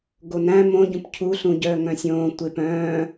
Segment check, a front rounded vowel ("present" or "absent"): present